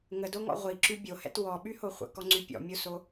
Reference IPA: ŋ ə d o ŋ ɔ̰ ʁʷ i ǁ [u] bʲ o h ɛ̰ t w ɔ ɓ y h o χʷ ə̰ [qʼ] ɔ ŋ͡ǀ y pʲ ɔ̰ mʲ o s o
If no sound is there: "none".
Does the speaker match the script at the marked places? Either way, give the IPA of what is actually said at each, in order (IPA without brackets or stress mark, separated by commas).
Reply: y, k